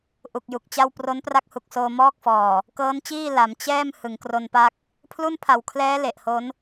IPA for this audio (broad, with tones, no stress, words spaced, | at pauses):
ʔu˨˩k̚ju˨˩k̚t͡ɕa˥˩w pro˦˥npra˦˥k̚hu˨˩k̚soː˧ mɔː˥˩k̚fɔː˨˩ | kɤː˦˥nt͡ɕiː˥˩ la˩˦m t͡ɕɛː˥˩m hɯ˩˦ŋkro˧npa˥˩k̚ | pʰlu˥˩npʰa˨˩wkʰlɛː˦˥ le˨˩ʔho˦˥n